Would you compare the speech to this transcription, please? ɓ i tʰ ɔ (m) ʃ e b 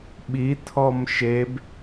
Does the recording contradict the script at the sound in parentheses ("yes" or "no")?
no